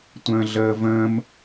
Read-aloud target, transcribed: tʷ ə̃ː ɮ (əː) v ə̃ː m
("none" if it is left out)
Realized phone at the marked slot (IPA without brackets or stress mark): əː